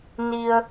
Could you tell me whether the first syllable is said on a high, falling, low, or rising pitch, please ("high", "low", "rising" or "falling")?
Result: low